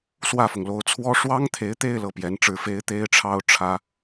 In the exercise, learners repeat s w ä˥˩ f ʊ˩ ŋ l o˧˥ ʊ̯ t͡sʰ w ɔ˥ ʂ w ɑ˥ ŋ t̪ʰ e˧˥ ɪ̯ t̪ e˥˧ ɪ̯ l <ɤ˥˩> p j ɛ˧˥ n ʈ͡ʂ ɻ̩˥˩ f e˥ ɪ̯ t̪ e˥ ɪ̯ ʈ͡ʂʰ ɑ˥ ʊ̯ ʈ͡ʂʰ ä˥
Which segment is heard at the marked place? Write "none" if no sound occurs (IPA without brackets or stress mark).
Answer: ɤ˥˩